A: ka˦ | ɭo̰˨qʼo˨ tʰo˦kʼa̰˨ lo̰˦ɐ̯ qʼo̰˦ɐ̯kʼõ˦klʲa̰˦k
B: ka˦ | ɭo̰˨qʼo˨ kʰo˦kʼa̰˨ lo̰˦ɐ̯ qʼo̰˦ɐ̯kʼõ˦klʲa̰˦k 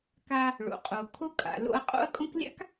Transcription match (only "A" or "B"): B